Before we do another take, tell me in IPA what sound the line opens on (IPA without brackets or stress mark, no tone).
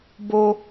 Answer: b